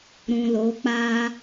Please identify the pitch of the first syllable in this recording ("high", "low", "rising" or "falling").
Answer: low